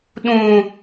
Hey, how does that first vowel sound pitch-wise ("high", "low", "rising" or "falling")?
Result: high